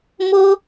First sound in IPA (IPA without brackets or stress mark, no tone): m